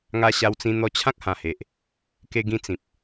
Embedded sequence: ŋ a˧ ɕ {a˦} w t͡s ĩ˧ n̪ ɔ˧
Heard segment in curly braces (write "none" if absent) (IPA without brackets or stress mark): a˧